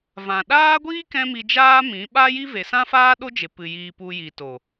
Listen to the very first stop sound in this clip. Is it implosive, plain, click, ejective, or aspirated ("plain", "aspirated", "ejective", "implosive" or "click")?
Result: implosive